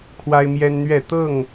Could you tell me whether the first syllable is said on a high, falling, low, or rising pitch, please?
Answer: high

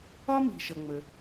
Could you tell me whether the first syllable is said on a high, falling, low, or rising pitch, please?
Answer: high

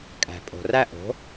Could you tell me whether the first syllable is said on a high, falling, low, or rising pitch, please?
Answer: low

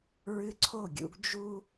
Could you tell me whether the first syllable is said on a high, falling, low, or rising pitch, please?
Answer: high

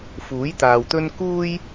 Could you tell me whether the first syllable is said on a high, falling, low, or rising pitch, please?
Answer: rising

